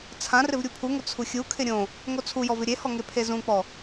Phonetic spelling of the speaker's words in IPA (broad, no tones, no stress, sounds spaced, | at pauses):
t͡sʰ ã r ɪ v ɾʲ u pʰ u ŋ ʊ t͡sʰ u xʲ u kʰ ɪ ɾʲ õ | ŋ o t͡sʰ u j ɔ v ɪ ɾʲ e h ɔ ŋ e pʰ e z ũ k͡p ɔ